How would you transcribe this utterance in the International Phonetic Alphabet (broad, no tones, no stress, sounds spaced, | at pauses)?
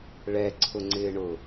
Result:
ɭ ɛ ǀʰ ʊ ŋ͡ǀ ɪː ɳ ʊ